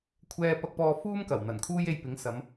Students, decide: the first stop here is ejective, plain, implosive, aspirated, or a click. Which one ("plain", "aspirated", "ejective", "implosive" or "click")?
aspirated